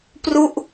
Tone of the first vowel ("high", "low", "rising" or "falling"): falling